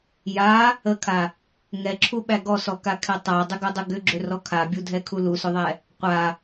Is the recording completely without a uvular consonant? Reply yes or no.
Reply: no